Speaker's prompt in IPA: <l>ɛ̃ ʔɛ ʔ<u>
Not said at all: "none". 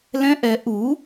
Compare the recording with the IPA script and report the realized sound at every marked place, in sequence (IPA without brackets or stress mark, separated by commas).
l, u